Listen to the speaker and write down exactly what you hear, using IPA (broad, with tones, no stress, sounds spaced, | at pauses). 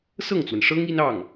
s ɤ˥˩ ŋ t͡s w ə˩ n ʂ ɤ˥ ŋ i˥ n ɑ˥˩ ŋ